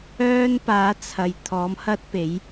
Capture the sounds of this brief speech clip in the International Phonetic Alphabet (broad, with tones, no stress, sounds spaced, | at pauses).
œː˥ n p aː˨˥ t͡sʰ ɐ˨ j t̪ʰ ɔː˨˥ m h ɐ˥ t̚ p e˨˥ j